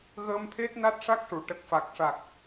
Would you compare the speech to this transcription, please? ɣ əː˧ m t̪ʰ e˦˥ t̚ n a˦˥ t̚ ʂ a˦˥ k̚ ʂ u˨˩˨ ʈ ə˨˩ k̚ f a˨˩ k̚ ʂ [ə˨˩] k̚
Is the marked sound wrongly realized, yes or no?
yes